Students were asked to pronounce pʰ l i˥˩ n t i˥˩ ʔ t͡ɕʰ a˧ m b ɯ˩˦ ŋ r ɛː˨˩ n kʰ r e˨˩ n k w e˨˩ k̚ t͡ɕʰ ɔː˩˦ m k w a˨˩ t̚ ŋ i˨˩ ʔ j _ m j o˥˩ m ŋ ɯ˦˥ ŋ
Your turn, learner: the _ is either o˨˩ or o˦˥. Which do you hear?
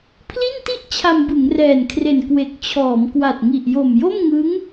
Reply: o˨˩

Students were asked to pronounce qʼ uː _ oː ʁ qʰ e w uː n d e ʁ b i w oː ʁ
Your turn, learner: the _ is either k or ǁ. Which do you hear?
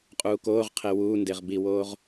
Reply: k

